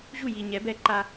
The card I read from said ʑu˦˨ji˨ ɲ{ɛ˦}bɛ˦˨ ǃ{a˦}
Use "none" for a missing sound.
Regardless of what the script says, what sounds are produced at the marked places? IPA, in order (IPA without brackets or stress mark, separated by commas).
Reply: ɛ˨˦, a˦